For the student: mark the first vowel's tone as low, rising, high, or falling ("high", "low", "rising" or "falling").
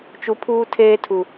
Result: low